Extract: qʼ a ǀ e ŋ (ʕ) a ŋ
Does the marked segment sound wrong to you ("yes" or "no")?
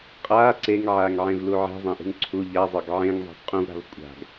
no